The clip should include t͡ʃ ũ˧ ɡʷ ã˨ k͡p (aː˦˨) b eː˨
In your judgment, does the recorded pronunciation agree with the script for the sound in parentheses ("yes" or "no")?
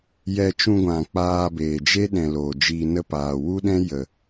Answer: no